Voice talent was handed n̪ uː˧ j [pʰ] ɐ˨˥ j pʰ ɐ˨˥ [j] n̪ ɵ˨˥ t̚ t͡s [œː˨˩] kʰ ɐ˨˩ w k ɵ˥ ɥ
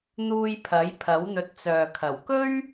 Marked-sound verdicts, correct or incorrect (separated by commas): correct, incorrect, incorrect